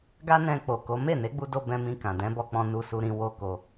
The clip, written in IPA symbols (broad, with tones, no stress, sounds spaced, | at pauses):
ɡ a˦ n ɛ̃˧ k͡p o˨ k o˨˦ m e˦˨ n e˨˦ ɡ͡b u˧ d o˧ b ɛ̃˧ m ĩ˧ k ã˨ d ɛ̃˨˦ b ɔ˧ k͡p ɔ̃˧ n u˧ s u˧ ɾ ĩ˧ w o˦ k o˧